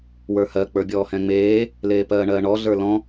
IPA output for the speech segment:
w ə˞ h ɜ k͡p ə˞ bʲ ɔː h ɛ̃ ŋ͡m eː | l eː p ɜː ɳ ɜː ɳ ɔ ɮ ə˞ l ɔ̃

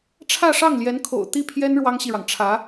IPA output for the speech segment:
ʈ͡ʂʰ ä˥˧ ʂ ɑ˥˩ ŋ l j ɛ˧˥ n kʰ o̰˨˩ ʊ̯ t̪ i˥˩ pʰ j ɛ˥ n ɻ w ɑ˥ ŋ ɕ i˨ ɻ ɑ˩ ŋ ʈ͡ʂʰ ä˧˥

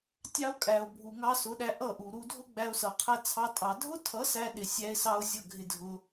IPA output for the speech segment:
tʲ ɑ˦ o̯ kʼ æ˨ o̯ bʱ u˨ ŋ ɑ˧ s ʊ˨˦ ɗ æ˧ ʔ ʌ˦˨ ʔ u˨ ɾ u˧ dʱ ʊ˦ ɡ͡b æ˧ o̯ s ʌ˨ qʰ æ˧ t͡sʰ ɑ˧ tʼ ɑ˨ dʱ ʊ˦ tʰ ʌ˨˦ s æ˦ ɗ ɪ˨ sʲ æ˧ e̯ s ɑ˦ o̯ zʲ ʌ˦˨ ɡʱ ɪ˧ dʱ ʊ˧

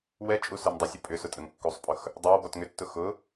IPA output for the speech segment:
w ɛ t͡ʃʼ u s ə˞ m dˤ ə sʲ ʊ pʼ ʏ s ʊ tʼ ə ŋ kː u sˤ pʼ ʊ x | dˤ ə˞ w b ɔ t ŋ ʏ tː ʊ x ʊ

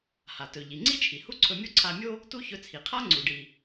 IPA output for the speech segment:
h a˩ t ɵ˩ ʎ i˩ ŋ͡ǀ i˥ t͡ʃʰ i˩ h u˥ ǀʰ ɵ˧ mʲ o˥ ǀʰ a˧ mʲ o˥ | t u˥ ç ɵ˧ t͡sʰ i˩ qʰ a˥ ŋ͡ǀ u˩ ɖ i˩

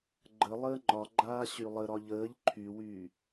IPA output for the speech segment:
ɡ͡ǃ ə lˠ əː ŋ͡ǃ ɒ ɡ͡ǃ aː ɕ y lˠ ə ɾ ɒ ʎ əː ʎ ǃʰ y w yː

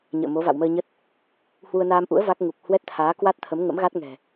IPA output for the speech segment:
ɲ ə̰ː˧˨ m o˨˦ v a̰˧˨ w m əː˧ ɲ ə˦˥ t̚ | h w u˧ ə̯ n aː˧ m ʔ ṵ˧˥ ə̯ v a˦˥ k̚ ŋ u˨˩ k̚ h w ɛ˦˥ t̚ t̪ʰ aː˨˦ k w a˦˥ t̚ t̪ʰ ə˨˦ m ŋ ə̰˧˥ m ɣ a˦˥ t̚ ŋ ɛ̤˨˩

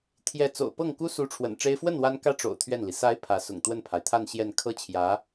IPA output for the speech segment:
t̪ʰ j ɛ˥˩ t͡s o̰˨˩ ʊ̯ p ɤ˥˩ ŋ k u˥ s u˧˥ ʈ͡ʂʰ w ə̰˨˩ n ʈ͡ʂ e˥ ɪ̯ f w ə˥˩ n w a˥ n k ä˥˩ ʈ͡ʂ o̰˨˩ ʊ̯ t̪ʰ ɥ ɛ˥˩ n l i˩ s a˧˥ ɪ̯ pʰ ä˧˥ s ʊ̰˨˩ ŋ t̪ w ə˥˩ n pʰ a˩ ɪ̯ t̪ʰ a˥˧ n ɕ j ɛ˥˧ n kʰ ɤ˥˩ t͡ɕʰ j ä˧˥

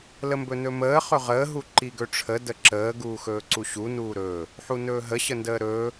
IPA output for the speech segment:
l ə m b ɵ n ɵ m əː χ ɵ ʁ əː ɦ u ǃ i ɡ ɵ ʈ͡ʂʰ ə d ə ǁ əː ɡ uː x ɵː ǀ u ɕ u n uː ɾ ɵː | ħ u n ɵː ɦ ə ɕ ə n d əː ɾ ɵː

